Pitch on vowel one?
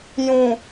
low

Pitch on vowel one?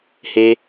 high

